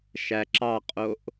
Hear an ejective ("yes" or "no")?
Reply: yes